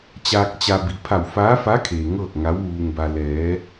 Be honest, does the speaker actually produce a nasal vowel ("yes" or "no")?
no